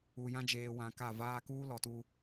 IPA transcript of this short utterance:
u˨ j ã˦ d͡ʒ eː˨ w ã˨ k a˦˨ v aː˦ k uː˦ l ɔ˨ t u˦

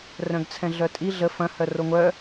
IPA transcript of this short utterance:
r œ̃ ɡ t͡sʰ ɛ̃ ɮ œ tʼ i ɮ ə f ɐ̃ h œ r o ŋʷ œ

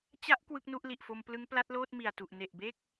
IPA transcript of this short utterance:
t͡ɕ a˦˥ ʔ k w ɯ˦˥ k̚ n u˦˥ ʔ l i˨˩ ʔ f o˧ m p l ɯ˦˥ ŋ p l a˦˥ t̚ l oː˥˩ t̚ m i˨˩ a̯ t u˨˩ ʔ n e˨˩ ʔ b e˥˩ k̚

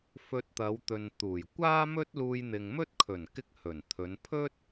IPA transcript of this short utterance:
f ɵ˧ t̚ t̪ ɐ˨˧ w t̪ ɵ˨ n t̪ uː˨˩ j kʷ aː˥ m ɵ˥ t̚ l uː˧ j n̪ ɪ˨ ŋ m ɵ˥ t̚ kʰ ɵ˨˩ n k ɪ˥ k̚ h ɵ˨˩ n t̪ʰ ɵ˨˧ n pʰ ɵ˥ t̚

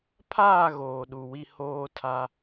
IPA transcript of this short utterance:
pʰ aː˦˨ ɣ oː˨ ɗ u˨ w i˦ h oː˦ tʰ a˦

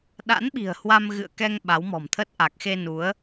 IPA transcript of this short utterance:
ɗ a̰˧˥ n ɓ i̤˨˩ ə̯ h w a˧ m ɣ ɨ̰˧˨ ə̯ k ɛ˧ ŋ ɓ a˨˦ w m ɔ̤˨˩ m t̪ʰ ə˦˥ t̚ ʔ a˨˩ k̚ x e˧ n u˨˦ ə̯

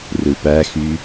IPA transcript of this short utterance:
r ɯ p æ x y

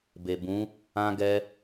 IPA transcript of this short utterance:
b e˨ b ũ˨˦ | ã˧ ɡ ɛ˧

